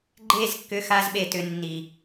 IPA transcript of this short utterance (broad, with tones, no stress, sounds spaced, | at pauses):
ɡ͡ǃ e˦˨ z kː ʏ˧ x a˧ z ɓ e˨ t ʏ˧ nː i˨